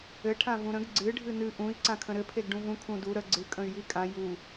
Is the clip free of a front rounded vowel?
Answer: no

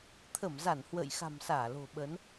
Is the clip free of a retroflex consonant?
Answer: yes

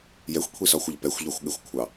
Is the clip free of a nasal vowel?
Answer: yes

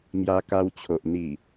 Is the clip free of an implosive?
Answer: yes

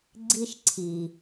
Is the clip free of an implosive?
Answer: yes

